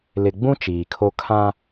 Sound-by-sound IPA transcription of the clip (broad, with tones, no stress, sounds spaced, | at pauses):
l ɪ˨ ɡ͡b ũ˦ t͡ʃ iː˨ kʰ o˦ kʰ ã˦